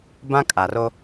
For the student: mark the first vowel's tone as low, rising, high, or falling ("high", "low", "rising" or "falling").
high